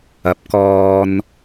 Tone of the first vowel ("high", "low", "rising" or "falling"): rising